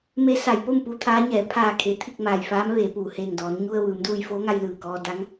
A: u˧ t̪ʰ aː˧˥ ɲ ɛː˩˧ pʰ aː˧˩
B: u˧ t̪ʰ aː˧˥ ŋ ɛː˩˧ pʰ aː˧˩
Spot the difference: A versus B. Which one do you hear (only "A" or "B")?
A